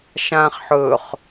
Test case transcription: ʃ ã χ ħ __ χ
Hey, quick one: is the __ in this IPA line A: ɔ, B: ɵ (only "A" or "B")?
B